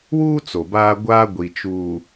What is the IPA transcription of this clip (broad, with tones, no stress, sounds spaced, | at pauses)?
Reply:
w uː˦ t͡s o˨ b aː˦ ɡʷ aː˦ ɡʷ i˨ t͡ʃ uː˨